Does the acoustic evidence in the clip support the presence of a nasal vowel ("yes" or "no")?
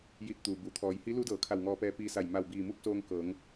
no